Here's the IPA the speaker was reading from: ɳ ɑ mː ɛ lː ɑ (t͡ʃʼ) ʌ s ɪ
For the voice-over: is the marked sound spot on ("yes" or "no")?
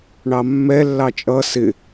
yes